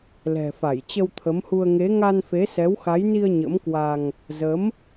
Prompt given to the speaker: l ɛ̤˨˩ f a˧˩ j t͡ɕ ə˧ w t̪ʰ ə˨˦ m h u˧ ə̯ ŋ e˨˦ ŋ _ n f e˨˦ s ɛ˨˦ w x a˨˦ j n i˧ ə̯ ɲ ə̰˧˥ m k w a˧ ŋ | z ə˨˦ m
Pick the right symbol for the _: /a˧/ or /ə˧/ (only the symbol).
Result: a˧